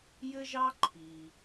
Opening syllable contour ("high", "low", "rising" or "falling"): high